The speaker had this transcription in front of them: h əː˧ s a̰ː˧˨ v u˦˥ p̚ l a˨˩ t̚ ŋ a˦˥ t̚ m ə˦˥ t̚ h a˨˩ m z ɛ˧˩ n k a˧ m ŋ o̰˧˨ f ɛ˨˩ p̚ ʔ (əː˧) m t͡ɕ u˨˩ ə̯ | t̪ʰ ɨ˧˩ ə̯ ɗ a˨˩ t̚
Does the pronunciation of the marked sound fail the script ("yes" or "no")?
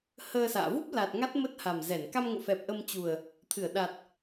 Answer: yes